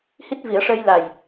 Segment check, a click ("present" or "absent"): absent